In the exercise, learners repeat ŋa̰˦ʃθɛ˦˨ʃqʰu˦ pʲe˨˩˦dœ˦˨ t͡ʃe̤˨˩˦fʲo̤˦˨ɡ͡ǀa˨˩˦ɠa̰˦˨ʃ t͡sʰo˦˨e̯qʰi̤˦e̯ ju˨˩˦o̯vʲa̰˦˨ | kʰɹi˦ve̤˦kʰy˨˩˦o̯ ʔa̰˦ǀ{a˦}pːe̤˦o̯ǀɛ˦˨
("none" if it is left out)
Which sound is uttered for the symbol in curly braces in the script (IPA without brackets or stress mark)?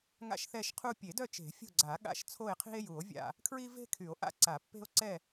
a˨˩˦